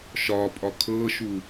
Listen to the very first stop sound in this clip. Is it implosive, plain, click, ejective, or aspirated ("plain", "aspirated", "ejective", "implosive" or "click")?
ejective